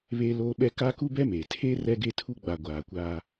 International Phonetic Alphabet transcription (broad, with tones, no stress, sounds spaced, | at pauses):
β eː˦ l oː˦ ɓ ɛ˦ k aː˦ k u˦ b ɛ˦ m e˨ tʰ e˦ r ɛ˦ ɡ e˦ tʰ u˦ ɡ͡b a˨ ɡʷ aː˨ kʷ aː˦